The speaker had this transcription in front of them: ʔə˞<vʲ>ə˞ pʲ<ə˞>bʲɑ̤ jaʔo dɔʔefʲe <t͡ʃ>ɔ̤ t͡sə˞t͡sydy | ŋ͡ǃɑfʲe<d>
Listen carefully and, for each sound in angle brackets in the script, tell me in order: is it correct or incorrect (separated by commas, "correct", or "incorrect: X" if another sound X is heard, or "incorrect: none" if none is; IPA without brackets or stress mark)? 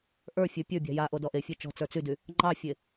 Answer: incorrect: fʲ, correct, correct, incorrect: none